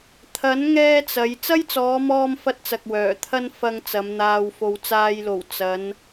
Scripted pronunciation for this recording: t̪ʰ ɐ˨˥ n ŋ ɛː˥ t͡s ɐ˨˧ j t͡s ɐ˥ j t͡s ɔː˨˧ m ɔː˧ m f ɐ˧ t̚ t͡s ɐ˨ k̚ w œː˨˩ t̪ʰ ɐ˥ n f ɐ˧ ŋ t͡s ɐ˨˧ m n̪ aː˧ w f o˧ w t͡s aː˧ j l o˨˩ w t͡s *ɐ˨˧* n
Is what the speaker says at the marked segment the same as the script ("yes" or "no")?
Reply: yes